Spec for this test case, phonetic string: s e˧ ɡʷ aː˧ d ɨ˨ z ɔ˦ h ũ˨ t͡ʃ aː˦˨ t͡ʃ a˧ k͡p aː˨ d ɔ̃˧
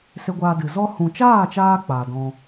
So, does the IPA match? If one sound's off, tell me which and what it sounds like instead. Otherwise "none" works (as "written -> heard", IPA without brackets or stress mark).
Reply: a˧ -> aː˧